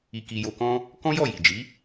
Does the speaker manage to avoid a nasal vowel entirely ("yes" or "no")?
no